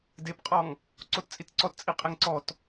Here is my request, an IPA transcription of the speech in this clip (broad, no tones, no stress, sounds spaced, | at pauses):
d e p qʼ ɔ ŋ | ǀ o t t͡sʼ i t ǀ ɔ t t͡sʼ i qʼ e ŋ ǀ ɔ t